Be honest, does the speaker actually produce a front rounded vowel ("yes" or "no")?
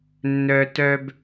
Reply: yes